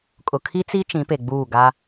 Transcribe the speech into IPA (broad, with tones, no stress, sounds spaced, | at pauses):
kʼ ʊ˨ kʰ i˦ t͡s i˦ t͡ʃ ĩ˨˦ p e˨ ɡ͡b uː˦˨ ɡ a˦